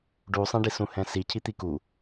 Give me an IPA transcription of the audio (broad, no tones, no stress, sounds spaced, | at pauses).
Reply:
ɖ u sˤ ɛ̃ ɖ i s ũ h ɛ̃ s i cʰ i t̪ i k u